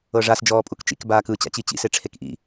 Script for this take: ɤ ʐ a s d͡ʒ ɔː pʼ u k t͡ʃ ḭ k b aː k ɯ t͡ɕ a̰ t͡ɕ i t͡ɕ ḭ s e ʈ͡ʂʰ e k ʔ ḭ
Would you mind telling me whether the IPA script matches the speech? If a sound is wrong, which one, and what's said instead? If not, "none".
none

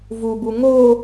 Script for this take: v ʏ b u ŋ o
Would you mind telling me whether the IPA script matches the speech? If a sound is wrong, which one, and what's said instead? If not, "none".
ʏ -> u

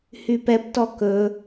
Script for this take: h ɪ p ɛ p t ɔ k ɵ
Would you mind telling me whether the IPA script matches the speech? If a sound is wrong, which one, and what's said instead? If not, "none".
ɪ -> y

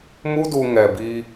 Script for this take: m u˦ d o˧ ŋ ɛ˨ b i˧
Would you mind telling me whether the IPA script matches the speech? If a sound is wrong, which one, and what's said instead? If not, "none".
o˧ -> u˧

